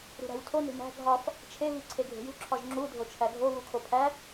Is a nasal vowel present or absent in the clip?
absent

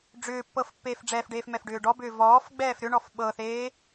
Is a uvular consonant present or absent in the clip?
absent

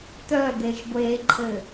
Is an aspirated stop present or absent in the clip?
present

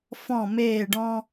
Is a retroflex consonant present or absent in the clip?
present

